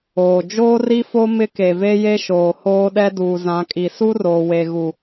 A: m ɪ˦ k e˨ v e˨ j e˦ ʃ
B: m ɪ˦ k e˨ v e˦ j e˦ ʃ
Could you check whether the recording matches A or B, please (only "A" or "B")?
B